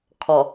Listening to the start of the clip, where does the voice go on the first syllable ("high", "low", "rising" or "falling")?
low